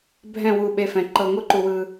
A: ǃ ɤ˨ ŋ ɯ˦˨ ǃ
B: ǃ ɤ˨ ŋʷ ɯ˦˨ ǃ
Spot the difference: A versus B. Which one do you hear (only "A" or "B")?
B